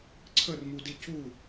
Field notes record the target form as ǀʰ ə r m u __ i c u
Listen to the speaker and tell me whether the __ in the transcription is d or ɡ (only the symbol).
d